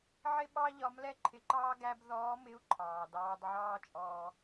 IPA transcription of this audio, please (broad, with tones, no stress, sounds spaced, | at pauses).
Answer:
ʕ ɪ˥ ɓ ɑ˥ ʎ ɒ˧˥ m l ɛ˥ ǃʰ ɪ˧ ǃ ɑː˥ ɡ æ˥ b ð ɔː˧˥ m ɪ˧˥ u̯ ǃʰ ɑː˩ d ɑː˧ d ʕ ɑː˥ t͡ʃʼ ɔː˧